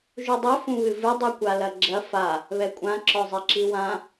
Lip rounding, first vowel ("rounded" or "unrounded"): rounded